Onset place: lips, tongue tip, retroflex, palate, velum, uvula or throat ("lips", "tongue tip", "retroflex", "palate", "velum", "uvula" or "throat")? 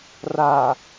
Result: tongue tip